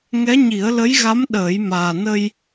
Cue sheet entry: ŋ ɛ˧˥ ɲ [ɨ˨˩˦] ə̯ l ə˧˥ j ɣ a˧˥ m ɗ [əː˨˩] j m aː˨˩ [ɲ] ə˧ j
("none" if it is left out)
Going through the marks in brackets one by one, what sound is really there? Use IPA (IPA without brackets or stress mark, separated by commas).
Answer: i˨˩˦, əː˨˩˦, n